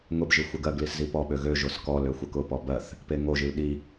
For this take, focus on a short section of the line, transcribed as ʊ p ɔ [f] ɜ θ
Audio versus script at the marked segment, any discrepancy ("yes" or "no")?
yes